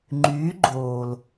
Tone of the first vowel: rising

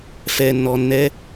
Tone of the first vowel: low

